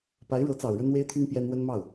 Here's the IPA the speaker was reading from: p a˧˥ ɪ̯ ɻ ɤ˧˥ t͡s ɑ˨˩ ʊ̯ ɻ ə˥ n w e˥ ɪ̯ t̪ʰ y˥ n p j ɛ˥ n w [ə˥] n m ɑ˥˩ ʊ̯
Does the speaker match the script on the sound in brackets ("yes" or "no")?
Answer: yes